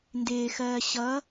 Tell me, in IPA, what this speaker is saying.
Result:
ndɪːxɜː ɕʌ

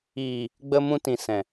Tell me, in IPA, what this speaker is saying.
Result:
iː˨ | ɡ͡bə˧mũ˧tĩ˨ sɛ̃˨

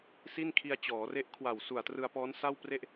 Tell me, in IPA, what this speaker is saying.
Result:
si˥˩nkʰi˧a̯ t͡ɕɔː˩˦re˦˥ʔkʰwa˨˩w su˨˩a̯trɯ˧a̯pɔː˦˥n sa˥˩wpre˥˩ʔ

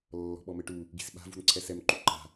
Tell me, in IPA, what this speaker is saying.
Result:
lːɔ̤ɓɔmɘʈu | ɡi̤sɓa̤ vṳnǀʰɛsɛm ǃuǃa̤

